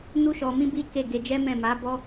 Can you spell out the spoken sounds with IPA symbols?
nu˦ʃɔ˧mĩ˦bi˦ ke˦˨ɡe˧ d͡ʒɛ˦mɛ̃˦˨ma˨˦ bɔ˦

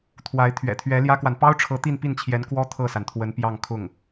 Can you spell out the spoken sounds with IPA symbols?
t̪ʰwa˧˥ɪ̯ t̪ʰɥɛ̰˨˩t̪ʰɥɛ˧˥ljä˥kwa˨n pɑ˥ʊ̯ʈ͡ʂʰɤ˧˥ t̪i˥˧npi˥˩nt͡ɕʰjɛ˧˥n kwɔ˥ t̪ʰɤ˥˩sa˩nt̪ʰwə˧˥n pjɑ˥˧ŋkʰʊ˥˩ŋ

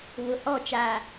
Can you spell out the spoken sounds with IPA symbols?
βʊ˨hɔ˦˨ t͡ʃaː˨

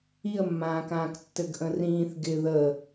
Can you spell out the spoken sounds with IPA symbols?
iə̯mːãːkãːk tːɘɡʔə̃rĩːθ ɡɪ ðə

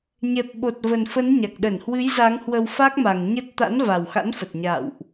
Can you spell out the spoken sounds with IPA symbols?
ɲɛ˨˩p̚ɓo˨˩t̚və˨˩n fə˨˦n ɲa˨˩k̚ɗə˧˩nhwɨ˨˦j za˨˦ŋhwə˧wfa˦˥k̚ma˨˩ŋ ɲə˦˥t̚ t̪a̰˧˥nva˨˩wxa̰˧˥nfə˨˩t̚ ɲa̰˧˨wʔ

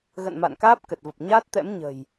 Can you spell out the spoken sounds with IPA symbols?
ɣə̰˧˨n ma̰˧˨nkaː˦˥p̚ kə˨˩t̚və˨˩p̚ ɲaː˦˥t̚t̪ɛ̰˧˥mɲə̤˨˩j

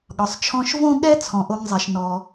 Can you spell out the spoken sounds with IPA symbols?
ɠɒ˩sˤt͡ʃʰɔ̃˧ʃvõ˥ ɠɛ˥t͡sʰɔ̃˩ ʔo˧ŋzˤɛ˩ʃ nɔ˩

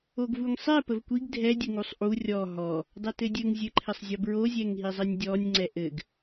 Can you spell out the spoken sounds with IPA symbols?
oɡvuŋsˤɛ pəvkʷiɡ dʱɛ dʲəŋusˤʔu rʲɔ ɦɔ | dˤɘtɘdʲɘŋ zʲɘǃʰɘsˤzʲɔbɹo zʲɛŋɦizˤɘnʲdʲɔnʲ ŋ͡ǀɛʔɘɡ

